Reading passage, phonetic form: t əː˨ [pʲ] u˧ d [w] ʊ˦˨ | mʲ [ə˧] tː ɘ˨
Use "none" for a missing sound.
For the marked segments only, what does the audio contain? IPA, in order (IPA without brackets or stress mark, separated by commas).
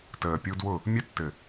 pʲ, w, ə˧